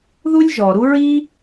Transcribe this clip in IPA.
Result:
ðu˦lʲʒɔ˨ɾu˦ ɹi˦

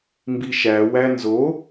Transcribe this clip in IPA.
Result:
mbiʃæ wænzo

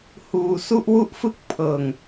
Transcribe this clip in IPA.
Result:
huː˧ su˥˩ʔwu˥˩ʔfɯ˥˩k̚ pʰɤː˨˩ŋ

